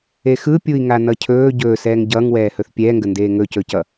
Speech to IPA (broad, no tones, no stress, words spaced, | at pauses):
exɯpʲui̯ŋa nʌcʰɵː ɟɵːsɛːŋ ɟʌːŋwɛːhɵθ pʲɛːŋɡəndeː ŋɵcɵcʌ